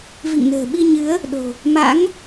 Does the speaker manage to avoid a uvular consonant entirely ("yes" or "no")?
yes